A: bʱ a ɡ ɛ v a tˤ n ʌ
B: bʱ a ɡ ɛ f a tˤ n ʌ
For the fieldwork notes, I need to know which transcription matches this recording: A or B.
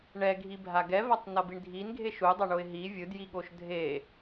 A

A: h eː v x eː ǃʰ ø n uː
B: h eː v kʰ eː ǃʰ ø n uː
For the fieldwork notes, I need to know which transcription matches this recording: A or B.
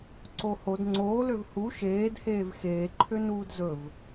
A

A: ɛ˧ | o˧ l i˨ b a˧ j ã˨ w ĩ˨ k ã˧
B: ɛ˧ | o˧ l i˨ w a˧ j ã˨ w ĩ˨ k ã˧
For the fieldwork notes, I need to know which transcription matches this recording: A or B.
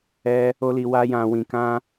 B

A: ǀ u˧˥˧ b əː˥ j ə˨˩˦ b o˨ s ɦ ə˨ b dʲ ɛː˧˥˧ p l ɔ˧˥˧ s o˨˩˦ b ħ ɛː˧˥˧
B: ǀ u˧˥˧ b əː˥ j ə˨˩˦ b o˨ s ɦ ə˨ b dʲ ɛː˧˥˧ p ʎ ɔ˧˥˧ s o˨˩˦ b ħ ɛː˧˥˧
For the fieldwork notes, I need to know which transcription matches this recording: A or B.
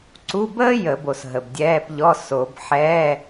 B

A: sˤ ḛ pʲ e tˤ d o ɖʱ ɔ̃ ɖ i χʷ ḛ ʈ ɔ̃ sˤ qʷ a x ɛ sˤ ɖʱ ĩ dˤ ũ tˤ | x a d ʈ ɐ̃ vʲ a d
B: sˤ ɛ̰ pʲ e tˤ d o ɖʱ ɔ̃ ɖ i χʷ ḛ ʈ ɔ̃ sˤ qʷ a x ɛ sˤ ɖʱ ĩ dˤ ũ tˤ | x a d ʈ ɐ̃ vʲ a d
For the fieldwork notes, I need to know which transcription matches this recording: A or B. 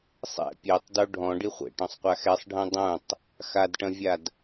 B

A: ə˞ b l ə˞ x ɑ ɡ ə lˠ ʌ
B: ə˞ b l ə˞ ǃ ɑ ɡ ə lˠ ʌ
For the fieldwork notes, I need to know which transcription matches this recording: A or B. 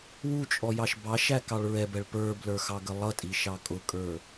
A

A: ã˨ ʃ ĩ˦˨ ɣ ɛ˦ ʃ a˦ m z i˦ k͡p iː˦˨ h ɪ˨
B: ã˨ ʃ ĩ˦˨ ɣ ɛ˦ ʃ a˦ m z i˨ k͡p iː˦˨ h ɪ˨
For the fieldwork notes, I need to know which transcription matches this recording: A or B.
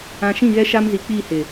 B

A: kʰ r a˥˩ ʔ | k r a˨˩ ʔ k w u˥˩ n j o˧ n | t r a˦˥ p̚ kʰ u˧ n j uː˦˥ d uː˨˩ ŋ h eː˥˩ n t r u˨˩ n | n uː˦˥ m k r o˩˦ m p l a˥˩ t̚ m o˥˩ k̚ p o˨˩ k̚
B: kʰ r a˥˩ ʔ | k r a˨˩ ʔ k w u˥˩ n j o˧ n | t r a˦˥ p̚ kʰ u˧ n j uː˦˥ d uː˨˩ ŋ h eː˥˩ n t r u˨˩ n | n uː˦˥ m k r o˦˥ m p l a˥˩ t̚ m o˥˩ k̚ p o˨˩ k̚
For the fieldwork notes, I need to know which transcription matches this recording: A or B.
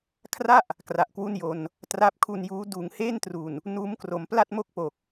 A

